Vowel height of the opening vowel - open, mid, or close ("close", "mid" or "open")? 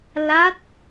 open